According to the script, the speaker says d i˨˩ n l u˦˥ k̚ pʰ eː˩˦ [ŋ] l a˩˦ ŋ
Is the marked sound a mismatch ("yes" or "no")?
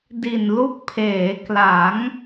yes